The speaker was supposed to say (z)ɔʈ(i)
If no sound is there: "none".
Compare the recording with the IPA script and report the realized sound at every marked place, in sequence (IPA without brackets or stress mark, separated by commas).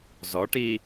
z, i